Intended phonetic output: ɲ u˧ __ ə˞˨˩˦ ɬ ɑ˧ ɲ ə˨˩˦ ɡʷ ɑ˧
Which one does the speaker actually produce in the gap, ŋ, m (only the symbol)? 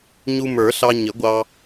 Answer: m